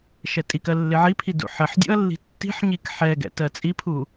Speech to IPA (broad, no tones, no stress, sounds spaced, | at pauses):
ʃ ɛ tʼ i k ɜ lː ɪ ʕ i pʰ i d ṵ ħ ɜ ħ dʲ ṵ ɐ̯ lː i̤ tː i̤ ħ ɲ i k ħ ɛ ɡ ɛ̰ t ɜ t͡sʼ i pʰ u